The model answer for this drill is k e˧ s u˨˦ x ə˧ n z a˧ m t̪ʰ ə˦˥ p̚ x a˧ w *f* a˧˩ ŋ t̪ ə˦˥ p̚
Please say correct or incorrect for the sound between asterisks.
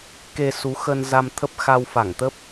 correct